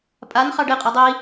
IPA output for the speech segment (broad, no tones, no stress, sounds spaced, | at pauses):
pʼ a n χ ɑ ɖ e qʼ e dˤ i